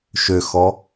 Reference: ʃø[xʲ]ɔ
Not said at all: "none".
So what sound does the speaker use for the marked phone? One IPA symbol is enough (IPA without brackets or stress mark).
x